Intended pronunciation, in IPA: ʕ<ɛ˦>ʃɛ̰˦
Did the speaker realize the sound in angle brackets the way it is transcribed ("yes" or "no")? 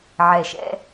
no